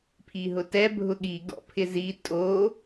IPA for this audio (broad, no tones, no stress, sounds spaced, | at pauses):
pʰ i ɦ ʊ t ɛ bʱ ʊ ɠ i ɡ ɔ̰ pʰ ɪ z i tʼ o